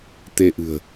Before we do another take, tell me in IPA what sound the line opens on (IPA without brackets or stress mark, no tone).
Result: t̪